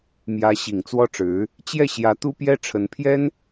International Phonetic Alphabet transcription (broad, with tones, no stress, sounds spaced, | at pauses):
m j ä˧˥ ɕ i˨˩ ŋ t͡s w ɔ˥ ʈ͡ʂ ɻ̩˧˥ | t͡ɕ j ɛ˥˩ ɕ j ä˧˥ t̪ u˥ p j ɛ˥ ʈ͡ʂʰ ə˧˥ n pʰ j ɛ˥ n